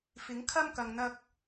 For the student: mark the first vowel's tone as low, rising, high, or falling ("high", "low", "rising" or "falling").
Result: rising